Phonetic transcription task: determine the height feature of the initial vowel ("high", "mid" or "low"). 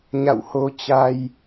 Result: low